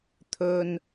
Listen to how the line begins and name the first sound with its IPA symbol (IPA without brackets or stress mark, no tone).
t̪ʰ